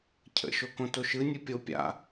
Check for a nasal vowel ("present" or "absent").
present